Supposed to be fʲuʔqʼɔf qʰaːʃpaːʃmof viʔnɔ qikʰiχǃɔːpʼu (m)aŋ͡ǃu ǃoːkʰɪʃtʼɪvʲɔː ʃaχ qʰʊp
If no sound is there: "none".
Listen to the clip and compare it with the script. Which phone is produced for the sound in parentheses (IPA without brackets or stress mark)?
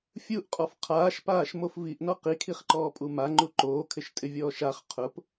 m